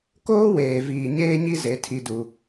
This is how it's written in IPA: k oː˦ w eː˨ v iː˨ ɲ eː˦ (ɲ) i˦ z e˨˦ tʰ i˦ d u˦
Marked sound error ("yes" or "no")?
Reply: no